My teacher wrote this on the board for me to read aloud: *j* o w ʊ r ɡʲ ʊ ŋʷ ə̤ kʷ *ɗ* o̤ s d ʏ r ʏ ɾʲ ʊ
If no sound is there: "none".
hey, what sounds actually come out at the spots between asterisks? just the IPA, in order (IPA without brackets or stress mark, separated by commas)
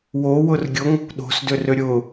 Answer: w, ɗ